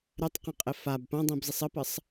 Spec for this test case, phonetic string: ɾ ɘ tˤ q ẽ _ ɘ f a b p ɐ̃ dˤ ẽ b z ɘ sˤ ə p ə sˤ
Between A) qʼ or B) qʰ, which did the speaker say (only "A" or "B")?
A